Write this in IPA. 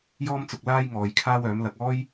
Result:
jɔː˥mt͡sʊ˧k̚ laː˥jŋɔː˨˧j kʰaː˥wœː˨˥mlɐ˧k̚ ɔː˥j

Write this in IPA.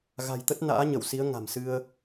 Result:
ɣa̤˨˩jt̪ə˦˥t̚ na̰ː˧˥ɲə˧˩wsi˨˦ə̯ ŋa̤˨˩msɨ˧ə̯

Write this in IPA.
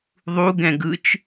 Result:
ðˤuɡɛ̃ ɡɯt͡ʃ

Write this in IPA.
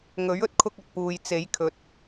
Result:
ŋɵ˨˥ɥ ɵ˥t̚kʰʊ˧k̚ ɐ˨t̚puː˨j t͡se˨˥jkʰɵ˨˥t̚

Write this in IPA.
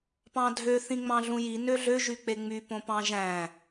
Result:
pɑ̃dʱø θĩŋ͡mɑ̃ɮũji nøɮø ʒyk͡peŋ͡my põpɑ̃ʒæ̃

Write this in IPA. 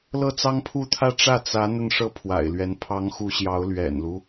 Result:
lɤ˥˩t͡sɑ˥ŋpʰu˥˧t̪ʰä˥˧ ʈ͡ʂä˥˩ t͡sä˧˥ n̪ə˥˧nʂɤ˥˩ pʰwa̰˨˩ɪ̯lɥɛ˧˥n pʰɑ˧˥ŋxu˧˥ɕjɑ˧˥ʊ̯ lɥɛ̰˨˩nlu˦

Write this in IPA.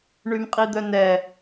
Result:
ɳymqʼid̪œnɛ

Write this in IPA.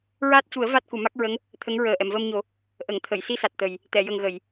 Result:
ɹaː˦˥t̚cu˨˩˦ə̯ va˦˥t̚ku˨˩˨ ma˦˥k̚ɹə˧˥ŋ | t̪ʰə˧˥ŋɹəː˨˩ ʔɛ˨˩˨mvəː˧mɲo˨˩˦ | ʔə˨˩˨ŋ t̪ʰə˨˩˨j si˧sa˨˩t̚ t̪ə˨˩j | t̪ɛ˨˩˨jə˨˩ŋɣə˨˩˨j

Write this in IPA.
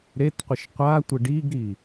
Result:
ɾetqʷɪʃ qʷatʷɪ ɖiɡɾi

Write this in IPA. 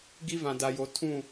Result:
ɡi˦vã˨da˨jo˨ tʰũ˦˨

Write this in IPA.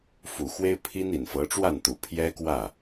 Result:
fu˨˩xwe˥ɪ̯ pʰi˥n i˨˩nfɤ˧˥ʈ͡ʂwa˥˩nt̪u˨˩ pʰjɛ˥kwä˥˩

